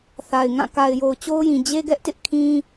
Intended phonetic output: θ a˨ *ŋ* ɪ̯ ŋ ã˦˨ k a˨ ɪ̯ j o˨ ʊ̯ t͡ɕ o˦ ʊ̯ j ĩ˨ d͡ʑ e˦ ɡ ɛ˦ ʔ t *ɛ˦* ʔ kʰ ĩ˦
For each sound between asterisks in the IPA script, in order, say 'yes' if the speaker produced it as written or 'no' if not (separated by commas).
no, no